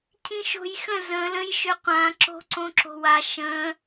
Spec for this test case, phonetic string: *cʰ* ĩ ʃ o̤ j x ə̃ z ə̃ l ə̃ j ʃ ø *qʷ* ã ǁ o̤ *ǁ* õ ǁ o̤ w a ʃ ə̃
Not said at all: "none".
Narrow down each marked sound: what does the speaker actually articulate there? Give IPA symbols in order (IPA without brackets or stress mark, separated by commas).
cʰ, qʷ, ǀ